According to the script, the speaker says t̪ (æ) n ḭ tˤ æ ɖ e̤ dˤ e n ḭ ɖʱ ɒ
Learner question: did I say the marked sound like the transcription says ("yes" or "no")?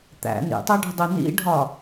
no